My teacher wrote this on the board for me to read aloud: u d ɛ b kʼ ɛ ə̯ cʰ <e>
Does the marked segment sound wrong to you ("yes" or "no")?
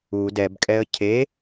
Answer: no